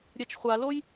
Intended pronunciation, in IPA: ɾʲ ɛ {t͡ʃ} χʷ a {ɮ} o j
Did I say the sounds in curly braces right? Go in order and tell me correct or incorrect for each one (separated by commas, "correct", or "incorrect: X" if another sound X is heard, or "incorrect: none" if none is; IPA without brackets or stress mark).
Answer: correct, incorrect: l